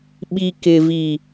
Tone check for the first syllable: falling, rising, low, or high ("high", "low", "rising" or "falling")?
low